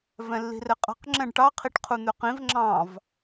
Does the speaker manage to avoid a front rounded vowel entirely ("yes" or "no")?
no